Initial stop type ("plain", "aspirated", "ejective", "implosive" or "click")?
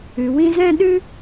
implosive